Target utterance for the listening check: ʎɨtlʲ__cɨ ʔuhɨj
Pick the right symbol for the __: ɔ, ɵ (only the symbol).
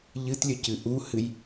ɵ